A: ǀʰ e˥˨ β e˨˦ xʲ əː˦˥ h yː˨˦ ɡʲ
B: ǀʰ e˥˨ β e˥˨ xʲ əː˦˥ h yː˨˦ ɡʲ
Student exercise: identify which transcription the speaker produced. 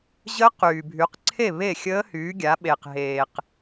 B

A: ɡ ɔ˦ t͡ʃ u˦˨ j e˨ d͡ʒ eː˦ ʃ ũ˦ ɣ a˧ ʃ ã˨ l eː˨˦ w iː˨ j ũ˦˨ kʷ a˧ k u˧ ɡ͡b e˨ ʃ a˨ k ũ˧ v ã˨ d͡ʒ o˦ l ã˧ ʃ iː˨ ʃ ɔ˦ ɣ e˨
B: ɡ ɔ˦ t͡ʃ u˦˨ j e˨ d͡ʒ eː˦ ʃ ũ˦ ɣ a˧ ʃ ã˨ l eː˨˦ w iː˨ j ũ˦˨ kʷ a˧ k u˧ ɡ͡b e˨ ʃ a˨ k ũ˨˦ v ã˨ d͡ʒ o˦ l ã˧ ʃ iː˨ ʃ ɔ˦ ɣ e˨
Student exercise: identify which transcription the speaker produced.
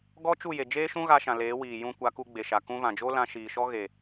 A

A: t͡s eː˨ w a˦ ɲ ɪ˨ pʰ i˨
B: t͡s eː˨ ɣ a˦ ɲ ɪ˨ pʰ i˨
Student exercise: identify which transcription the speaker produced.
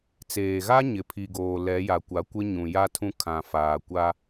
B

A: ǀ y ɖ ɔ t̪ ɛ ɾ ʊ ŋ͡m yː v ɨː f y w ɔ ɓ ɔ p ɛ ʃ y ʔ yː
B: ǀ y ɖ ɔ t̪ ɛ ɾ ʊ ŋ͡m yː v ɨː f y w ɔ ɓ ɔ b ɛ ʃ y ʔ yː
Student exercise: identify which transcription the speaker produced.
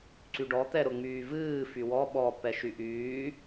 A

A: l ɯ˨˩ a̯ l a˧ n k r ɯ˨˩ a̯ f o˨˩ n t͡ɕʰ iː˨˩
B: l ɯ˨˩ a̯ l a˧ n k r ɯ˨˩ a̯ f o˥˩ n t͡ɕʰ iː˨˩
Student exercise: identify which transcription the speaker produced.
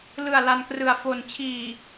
A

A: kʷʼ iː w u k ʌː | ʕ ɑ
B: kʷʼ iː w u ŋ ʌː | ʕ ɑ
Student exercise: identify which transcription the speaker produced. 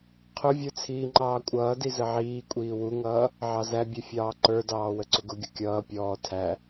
B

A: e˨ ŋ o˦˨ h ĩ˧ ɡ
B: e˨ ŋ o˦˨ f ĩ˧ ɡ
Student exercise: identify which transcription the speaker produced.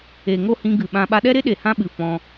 A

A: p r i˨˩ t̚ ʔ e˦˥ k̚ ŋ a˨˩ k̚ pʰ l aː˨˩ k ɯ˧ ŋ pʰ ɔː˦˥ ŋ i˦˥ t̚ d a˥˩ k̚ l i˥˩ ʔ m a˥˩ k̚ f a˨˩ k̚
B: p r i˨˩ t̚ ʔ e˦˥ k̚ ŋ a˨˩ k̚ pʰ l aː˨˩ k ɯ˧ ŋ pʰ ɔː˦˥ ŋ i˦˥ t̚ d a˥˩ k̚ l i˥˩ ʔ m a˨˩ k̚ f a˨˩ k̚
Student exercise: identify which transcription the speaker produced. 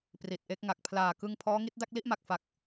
B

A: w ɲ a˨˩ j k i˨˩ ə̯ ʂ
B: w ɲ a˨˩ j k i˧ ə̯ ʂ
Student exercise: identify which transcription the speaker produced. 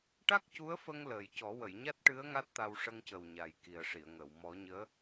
A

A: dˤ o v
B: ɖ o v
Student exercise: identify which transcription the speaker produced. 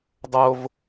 A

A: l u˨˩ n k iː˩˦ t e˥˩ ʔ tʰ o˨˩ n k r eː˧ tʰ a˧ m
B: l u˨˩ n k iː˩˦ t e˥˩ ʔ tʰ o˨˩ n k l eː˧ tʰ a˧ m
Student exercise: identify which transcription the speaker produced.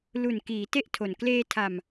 B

